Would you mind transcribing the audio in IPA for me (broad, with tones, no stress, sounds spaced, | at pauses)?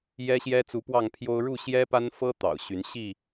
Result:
j ɛ˦ ɕ j ɛ˦ t͡s u˨˦ p w ɑ˥˨ ŋ pʰ j o˦ ʊ̯ ɻ u˥˨ ɕ j ɛ˦ p a˦ n f ɤ˦ t̪ ɑ̰˨˩ ʊ̯ ɕ y˨˦ n ɕ i˥˨